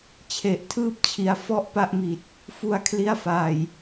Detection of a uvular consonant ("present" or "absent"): absent